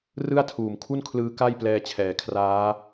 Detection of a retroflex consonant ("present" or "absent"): absent